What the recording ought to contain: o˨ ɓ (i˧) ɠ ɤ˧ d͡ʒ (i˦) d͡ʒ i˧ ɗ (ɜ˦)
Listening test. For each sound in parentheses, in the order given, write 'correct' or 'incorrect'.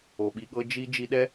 correct, correct, incorrect

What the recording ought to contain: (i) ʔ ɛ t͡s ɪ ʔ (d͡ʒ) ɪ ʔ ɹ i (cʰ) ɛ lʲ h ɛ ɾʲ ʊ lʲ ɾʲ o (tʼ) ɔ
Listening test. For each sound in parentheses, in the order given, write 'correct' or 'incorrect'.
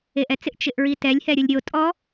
incorrect, incorrect, incorrect, correct

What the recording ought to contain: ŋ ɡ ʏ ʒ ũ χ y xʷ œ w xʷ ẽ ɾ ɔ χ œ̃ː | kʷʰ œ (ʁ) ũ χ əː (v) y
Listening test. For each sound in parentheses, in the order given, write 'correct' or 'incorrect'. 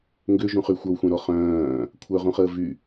correct, correct

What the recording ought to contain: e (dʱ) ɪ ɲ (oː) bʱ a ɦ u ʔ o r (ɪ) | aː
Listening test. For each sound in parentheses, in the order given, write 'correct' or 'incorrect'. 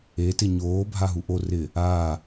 incorrect, correct, correct

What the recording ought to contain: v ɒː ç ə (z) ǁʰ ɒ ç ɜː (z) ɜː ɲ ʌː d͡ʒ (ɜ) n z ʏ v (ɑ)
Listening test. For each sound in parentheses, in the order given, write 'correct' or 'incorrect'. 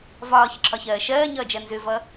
incorrect, incorrect, correct, incorrect

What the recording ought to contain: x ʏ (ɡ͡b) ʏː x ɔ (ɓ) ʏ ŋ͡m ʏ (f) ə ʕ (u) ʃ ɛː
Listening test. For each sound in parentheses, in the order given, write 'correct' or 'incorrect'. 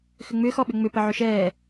incorrect, correct, incorrect, incorrect

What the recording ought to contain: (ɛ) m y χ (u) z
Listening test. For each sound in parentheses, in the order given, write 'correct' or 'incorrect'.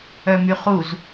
incorrect, correct

